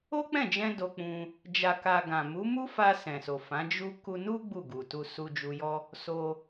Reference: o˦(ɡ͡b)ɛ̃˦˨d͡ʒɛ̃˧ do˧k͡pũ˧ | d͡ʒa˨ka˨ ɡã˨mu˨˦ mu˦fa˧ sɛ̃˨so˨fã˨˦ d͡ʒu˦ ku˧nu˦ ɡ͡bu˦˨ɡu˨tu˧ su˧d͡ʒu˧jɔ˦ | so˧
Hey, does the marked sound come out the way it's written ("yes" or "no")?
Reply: no